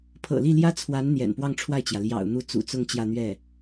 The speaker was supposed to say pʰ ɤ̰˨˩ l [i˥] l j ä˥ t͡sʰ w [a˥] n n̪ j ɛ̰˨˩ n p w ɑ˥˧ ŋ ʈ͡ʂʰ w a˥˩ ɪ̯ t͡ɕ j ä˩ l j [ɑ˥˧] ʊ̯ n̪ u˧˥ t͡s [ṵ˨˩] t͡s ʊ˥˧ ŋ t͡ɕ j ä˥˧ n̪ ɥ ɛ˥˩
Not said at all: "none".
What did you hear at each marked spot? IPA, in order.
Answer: i˥˩, a˧˥, ɑ̰˨˩, ṵ˨˩

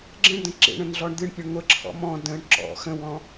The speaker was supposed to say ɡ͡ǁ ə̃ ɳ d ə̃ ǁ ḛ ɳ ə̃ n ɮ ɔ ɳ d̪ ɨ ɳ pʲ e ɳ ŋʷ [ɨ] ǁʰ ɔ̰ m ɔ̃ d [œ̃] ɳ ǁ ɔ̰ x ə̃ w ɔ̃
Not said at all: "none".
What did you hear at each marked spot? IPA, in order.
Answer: ə, ə̃

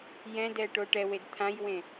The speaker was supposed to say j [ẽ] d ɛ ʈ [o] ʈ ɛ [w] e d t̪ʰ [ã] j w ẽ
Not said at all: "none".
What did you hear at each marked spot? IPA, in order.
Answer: ɛ̃, o, w, ã

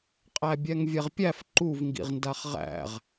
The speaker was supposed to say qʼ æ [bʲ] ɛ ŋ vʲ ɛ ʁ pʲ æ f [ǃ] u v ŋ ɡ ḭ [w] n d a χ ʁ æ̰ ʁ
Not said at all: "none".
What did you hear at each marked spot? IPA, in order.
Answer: bʲ, ǃ, ʁ

